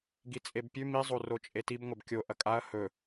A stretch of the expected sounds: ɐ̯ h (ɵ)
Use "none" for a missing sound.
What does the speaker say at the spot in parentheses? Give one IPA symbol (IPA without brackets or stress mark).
ɵ